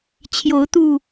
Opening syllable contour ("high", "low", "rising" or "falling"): rising